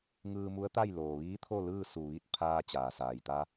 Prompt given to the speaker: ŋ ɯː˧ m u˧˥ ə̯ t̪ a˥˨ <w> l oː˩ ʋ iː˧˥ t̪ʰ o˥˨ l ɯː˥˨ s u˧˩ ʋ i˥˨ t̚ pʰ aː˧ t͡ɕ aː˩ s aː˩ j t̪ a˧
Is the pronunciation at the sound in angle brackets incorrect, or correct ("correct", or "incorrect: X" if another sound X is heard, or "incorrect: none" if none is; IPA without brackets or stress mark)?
incorrect: j